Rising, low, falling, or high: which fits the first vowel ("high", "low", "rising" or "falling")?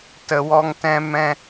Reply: low